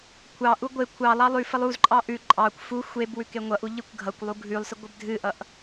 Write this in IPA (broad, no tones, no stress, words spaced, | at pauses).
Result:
kʷʰɑʔu ɡʷe kʷʰɑlˠɑ lˠʉfəlˠ uzǃʼɑ ʔʉ ǃʼɑkʷ fu xʷeb wʉkeŋʷʌʔu ʎikʷɡʱʌkʷlˠu ɡʱʉlˠsə ɡʷəbdʱɨʔʌʔ